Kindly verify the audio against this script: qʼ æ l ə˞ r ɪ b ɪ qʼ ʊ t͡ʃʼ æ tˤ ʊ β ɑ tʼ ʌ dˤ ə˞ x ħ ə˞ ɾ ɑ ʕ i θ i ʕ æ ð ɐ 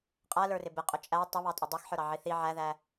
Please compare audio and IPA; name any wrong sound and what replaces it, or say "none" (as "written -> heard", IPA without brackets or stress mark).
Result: ɐ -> æ